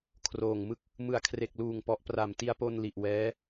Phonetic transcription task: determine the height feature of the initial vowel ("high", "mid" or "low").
mid